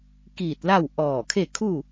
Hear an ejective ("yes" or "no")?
no